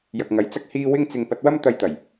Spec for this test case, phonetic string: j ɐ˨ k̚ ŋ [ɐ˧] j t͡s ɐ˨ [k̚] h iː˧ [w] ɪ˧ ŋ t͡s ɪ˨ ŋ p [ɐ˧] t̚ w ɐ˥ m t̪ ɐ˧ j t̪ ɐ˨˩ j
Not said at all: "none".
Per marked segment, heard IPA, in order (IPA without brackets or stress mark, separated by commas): ɐ˨˥, k̚, w, ɐ˧